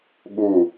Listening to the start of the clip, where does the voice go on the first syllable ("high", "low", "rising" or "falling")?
falling